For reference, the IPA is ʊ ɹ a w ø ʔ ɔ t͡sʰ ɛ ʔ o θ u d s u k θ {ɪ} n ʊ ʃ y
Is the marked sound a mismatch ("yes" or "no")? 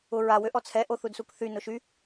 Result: yes